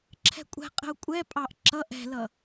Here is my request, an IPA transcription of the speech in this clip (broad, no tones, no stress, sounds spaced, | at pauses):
ǁʰ ɛ̤ kʷʼ ɛ̤ qʼ ə̤ ʊ̯ kʷʼ ɛ pʼ ɑ ʔ ǁ ʌ ʔ ɛ̤ l ʌ